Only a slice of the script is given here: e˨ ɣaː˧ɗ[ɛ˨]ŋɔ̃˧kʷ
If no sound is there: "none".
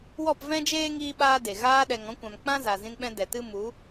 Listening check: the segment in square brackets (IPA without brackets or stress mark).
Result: ɛ˨